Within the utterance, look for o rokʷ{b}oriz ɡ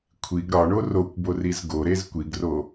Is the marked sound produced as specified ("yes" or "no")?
yes